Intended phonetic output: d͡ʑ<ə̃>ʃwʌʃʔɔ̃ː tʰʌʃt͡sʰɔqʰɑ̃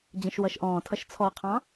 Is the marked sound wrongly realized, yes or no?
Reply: no